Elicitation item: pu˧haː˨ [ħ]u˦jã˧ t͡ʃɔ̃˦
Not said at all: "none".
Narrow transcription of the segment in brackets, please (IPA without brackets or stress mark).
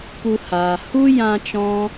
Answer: h